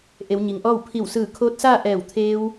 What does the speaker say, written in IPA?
ʔ e˩˧ w ɲ i˩ ŋ ʔ ɔː˥˨ w pʰ i˧˩ w s ɯː˧˩ kʰ oː˧˥ t̚ s aː˥˨ ʔ ɛː˧˩ w t̪ʰ eː˧ w

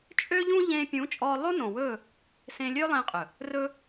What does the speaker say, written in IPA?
t͡ʃʼ ø˦ ʎ ũ˦ ʎ ẽː˧ pʲ ũ˨˦ t͡ʃʼ ɔː˧ lˠ o˦ n õ˨ w ɵː˦˨ | s ẽ˧ lʲ ø˦ lˠ ẽ˧ qʼ ɵ˨ | r ɵ˧

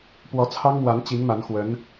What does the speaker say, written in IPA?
p w ɔ˧˥ t͡sʰ ɑ˥ ŋ m w a˧˥ n t͡ɕ i˧˥ ŋ m a˧˥ n x w ə˧˥ n

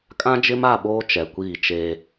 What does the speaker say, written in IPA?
kʼ ã˦ d͡ʒ ɪ˦ m a˦˨ ɓ oː˦ t͡ʃ ɛ˨ kʷ iː˦˨ t͡ʃ eː˦

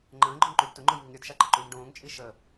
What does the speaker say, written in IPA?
ŋ͡ǃ ə̃ː ɡ͡ǃ ʊ ŋ ǃ y d t ʊ ŋ͡ǃ o j ŋ i ŋ ɾʲ ʊ d ʃ a ǃ ə ǃ yː ŋ ɖ õː ŋ t͡ʃʼ i ʃ ə

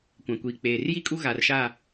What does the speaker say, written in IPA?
kʷ ã˨ kʷ iː˨ k͡p eː˨ r j i˦ kʼ u˦ ɣ a˨ r ʃ a˦˨

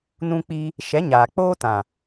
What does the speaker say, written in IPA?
n ũ˧ k͡p i˧ | ʃ ɛ˨˦ ɲ aː˨ k͡p oː˦ t ã˨

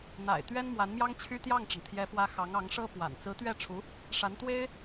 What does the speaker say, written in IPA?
n̪ a̰˨˩ ɪ̯ t̪ ɥ ɛ˥ n m w a˧˥ n m j ɑ˥ ŋ t͡ɕʰ y˥ t̪ j ɑ˥˩ ŋ ʈ͡ʂ ə˩ n t̪ʰ j ɛ˧˥ f w ä˧˥ x ɑ˧˥ ŋ ɑ˧˥ ŋ ʂ ɤ˥ p w a̰˨˩ n t͡s ɹ̩˧˥ t̪ ɥ ɛ˥˩ ʈ͡ʂʰ u˧˥ | ʂ a˧˥ n t̪ w e˥ ɪ̯

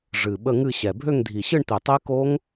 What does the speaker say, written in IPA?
ʐ ɨ˨˩ ɓ ə˥˧ ŋ ɨ˥˧ ɕ ɛ˨˩ bʱ ø˥˧ ŋ dʱ i˨˩ ɕ ɨ˥˧ ɳ t̪ i˨˩ tˤ i˦˥ k o˦˥ ŋ

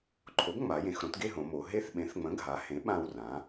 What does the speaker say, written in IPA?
ǃʰ o˩˥ ɡ ŋ͡m a˩˧ j ẽ˩˧ x ɾ õ˩˥ t ɡ e˥˧ ɦ õ˩˧ m o˩˧ ɦ e˥˧ θ ɓ ẽ˩˥ θ ŋ͡m ə̃˩˥ ɡʱ a˩˧ h ẽ˩˥ ɓ ã˥˧ w r ã˩˥

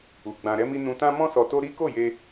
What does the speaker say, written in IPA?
u˨ ɡ͡b ã˧ ɾ ɛ˦ m i˦ n ũ˧ t ã˦ m ɔ̃˦ s ɔ˧ t o˦ ɾ i˦ k o˦˨ j e˧

